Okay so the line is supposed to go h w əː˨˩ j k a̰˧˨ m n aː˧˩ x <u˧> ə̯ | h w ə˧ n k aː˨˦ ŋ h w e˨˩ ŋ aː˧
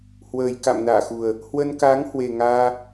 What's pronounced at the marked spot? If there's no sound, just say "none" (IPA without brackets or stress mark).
u˨˩